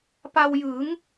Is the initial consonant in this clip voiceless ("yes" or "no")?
yes